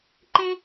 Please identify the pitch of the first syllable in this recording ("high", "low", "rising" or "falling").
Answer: high